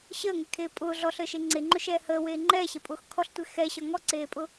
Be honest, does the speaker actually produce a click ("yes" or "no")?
yes